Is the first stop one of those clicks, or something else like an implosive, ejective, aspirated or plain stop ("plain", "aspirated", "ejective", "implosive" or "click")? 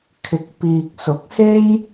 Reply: aspirated